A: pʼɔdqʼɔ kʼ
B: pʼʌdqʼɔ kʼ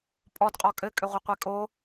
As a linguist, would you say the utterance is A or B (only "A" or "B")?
A